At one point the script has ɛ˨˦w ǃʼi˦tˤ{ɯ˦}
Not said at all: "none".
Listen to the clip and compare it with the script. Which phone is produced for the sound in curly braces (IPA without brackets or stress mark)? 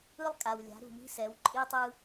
ɯ˦